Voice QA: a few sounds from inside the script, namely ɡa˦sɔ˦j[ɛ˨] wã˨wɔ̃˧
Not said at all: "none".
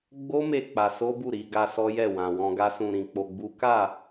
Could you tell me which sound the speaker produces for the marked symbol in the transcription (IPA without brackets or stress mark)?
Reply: ɛ˦˨